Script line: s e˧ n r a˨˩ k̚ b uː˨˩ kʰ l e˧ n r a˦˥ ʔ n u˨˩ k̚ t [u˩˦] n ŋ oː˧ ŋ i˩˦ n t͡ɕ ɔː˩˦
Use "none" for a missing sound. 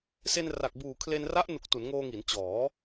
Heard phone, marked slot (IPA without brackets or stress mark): u˩˦